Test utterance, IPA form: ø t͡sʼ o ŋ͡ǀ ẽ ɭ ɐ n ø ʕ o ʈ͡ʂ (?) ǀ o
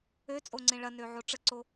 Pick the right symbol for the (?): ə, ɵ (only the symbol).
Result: ə